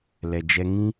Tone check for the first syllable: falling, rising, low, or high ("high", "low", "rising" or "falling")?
low